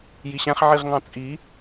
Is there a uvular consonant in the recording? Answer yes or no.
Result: yes